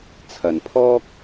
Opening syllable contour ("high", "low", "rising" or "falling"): low